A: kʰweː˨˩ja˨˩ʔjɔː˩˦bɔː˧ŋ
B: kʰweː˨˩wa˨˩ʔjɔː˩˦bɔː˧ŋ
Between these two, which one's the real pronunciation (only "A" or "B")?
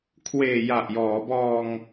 A